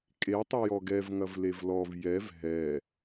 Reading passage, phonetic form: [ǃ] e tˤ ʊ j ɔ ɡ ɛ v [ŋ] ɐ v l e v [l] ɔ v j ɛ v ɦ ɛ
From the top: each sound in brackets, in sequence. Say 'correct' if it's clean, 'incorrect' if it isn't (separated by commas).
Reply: incorrect, correct, correct